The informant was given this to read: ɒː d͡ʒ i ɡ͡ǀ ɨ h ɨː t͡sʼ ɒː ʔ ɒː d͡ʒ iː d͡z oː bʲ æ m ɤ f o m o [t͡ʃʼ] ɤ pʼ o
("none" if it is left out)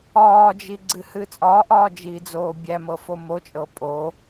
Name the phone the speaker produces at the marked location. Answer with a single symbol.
t͡ʃʼ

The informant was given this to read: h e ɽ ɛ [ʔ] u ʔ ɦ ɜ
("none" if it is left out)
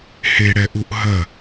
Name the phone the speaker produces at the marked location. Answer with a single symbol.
ʔ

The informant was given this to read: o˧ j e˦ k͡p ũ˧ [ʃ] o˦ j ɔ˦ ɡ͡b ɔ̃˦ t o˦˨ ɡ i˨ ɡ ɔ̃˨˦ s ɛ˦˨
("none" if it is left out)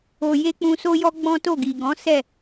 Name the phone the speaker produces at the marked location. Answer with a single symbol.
s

